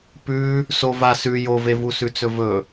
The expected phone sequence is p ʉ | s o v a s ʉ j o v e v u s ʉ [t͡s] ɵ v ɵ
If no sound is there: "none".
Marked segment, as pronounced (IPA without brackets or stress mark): t͡s